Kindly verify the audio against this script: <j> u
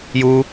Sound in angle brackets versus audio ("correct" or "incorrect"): correct